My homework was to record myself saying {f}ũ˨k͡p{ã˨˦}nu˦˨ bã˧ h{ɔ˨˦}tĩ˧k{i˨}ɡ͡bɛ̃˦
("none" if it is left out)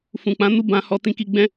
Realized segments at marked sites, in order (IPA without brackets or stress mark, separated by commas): f, ã˨˦, ɔ˧, i˧